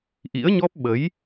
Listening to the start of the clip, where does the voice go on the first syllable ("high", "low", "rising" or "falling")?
rising